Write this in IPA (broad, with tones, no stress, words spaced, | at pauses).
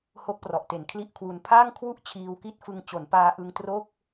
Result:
ho˦˥k̚prɔ˨˩ʔ te˨˩nkʰli˥˩ʔkʰwu˧n pʰaː˥˩ŋkʰwu˥˩ʔ t͡ɕʰiː˧wki˥˩t̚fɯ˧ŋ t͡ɕo˩˦npaː˧ʔɯ˧ŋtro˥˩k̚